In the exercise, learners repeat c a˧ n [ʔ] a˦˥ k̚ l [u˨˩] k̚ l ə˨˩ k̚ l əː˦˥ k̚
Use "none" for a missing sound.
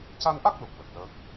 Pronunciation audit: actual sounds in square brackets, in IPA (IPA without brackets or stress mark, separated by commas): ʔ, u˨˩